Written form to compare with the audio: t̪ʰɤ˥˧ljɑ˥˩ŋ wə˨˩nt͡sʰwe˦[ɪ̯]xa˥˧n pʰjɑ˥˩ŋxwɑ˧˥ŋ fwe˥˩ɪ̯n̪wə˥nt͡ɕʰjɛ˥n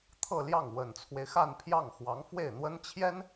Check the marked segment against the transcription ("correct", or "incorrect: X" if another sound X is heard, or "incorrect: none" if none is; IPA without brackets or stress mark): correct